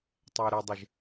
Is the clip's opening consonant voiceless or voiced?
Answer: voiceless